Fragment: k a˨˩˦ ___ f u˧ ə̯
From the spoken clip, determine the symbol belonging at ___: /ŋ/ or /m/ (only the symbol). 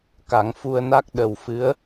ŋ